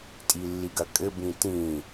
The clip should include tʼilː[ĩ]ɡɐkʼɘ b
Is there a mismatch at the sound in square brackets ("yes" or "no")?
yes